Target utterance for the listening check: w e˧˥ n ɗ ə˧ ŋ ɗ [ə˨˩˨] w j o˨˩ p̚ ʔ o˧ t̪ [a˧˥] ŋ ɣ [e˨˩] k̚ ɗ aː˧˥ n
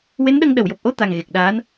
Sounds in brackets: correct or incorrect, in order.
correct, incorrect: a˨˩, correct

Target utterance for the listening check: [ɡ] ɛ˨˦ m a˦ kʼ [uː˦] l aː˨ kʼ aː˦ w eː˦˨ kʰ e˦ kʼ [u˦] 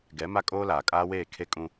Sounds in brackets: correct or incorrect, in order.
correct, incorrect: oː˦, incorrect: ũ˦

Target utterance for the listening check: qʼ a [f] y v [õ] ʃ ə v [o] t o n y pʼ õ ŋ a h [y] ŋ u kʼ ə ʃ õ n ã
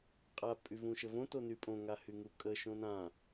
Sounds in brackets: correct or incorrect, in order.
incorrect: pʼ, incorrect: ũ, incorrect: õ, correct

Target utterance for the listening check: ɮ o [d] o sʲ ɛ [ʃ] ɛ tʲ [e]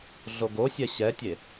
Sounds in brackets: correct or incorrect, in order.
incorrect: ɡ, incorrect: ɕ, correct

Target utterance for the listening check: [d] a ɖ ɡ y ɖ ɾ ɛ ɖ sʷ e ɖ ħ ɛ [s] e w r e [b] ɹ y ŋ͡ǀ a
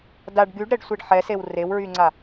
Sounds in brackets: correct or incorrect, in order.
correct, correct, incorrect: w

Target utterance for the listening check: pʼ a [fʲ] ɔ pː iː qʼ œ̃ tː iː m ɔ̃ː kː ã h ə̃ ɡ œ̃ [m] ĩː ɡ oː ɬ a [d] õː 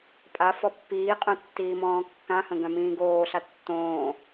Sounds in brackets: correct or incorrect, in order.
incorrect: f, correct, incorrect: tː

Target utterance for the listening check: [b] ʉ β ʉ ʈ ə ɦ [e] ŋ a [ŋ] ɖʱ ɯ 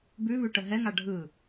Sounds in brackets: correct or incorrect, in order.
correct, incorrect: ɛ, incorrect: none

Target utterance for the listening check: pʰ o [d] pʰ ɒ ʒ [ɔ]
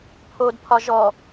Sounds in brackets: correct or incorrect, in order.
correct, correct

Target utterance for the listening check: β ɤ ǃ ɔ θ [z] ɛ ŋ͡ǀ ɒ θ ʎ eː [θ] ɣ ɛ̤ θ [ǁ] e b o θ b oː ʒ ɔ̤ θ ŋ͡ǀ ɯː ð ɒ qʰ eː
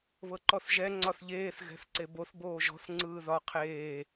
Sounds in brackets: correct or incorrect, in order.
incorrect: ʒ, correct, incorrect: ǀ

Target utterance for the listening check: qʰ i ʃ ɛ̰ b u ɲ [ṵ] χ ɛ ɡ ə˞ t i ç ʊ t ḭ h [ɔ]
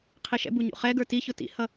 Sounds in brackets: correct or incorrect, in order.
correct, incorrect: ʌ

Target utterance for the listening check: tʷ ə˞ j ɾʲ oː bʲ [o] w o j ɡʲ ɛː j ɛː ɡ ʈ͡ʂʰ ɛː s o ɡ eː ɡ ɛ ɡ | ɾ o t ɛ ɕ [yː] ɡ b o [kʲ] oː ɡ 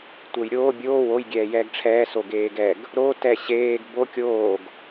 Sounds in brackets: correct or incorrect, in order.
incorrect: oː, incorrect: eː, correct

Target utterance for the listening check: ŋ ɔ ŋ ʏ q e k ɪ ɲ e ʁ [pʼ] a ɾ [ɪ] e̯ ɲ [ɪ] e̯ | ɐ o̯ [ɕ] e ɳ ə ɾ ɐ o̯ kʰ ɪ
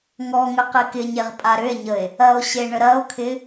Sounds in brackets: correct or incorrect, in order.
correct, incorrect: ʏ, incorrect: ə, correct

